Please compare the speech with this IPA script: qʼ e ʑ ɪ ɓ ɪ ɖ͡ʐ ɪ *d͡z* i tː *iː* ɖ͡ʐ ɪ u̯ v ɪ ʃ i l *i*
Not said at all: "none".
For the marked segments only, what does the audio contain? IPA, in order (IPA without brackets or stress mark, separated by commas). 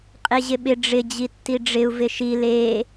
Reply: d͡ʑ, i, e